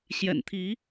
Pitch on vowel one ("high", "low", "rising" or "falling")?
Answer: low